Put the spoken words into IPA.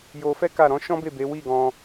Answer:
j o˧ f ɛ˦ k a˦˨ ɾ ɔ̃˨˦ ʃ ɔ̃˦ b e˦˨ b e˨˦ w i˦˨ ɡ ɔ̃˧

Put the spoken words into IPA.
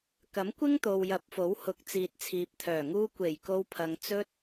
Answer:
k ɐ˨˥ m kʷ ɪ˥ ŋ t̪ o˨ w j ɐ˨˥ p̚ f o˨˥ w h ʊ˨˥ k̚ t͡s iː˨ t̚ t͡sʰ iː˨ p̚ t̪ʰ œː˨˩ ŋ uː˧ kʷ e˨˩ j k o˧ w pʰ ɐ˨ ŋ t͡s ɵ˧ t̚

